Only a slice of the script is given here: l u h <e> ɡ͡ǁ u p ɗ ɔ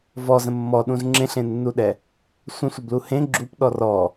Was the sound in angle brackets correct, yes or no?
no